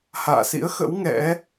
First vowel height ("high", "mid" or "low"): low